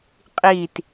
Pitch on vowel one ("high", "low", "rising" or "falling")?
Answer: falling